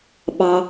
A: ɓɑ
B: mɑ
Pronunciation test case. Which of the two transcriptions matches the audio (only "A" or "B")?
A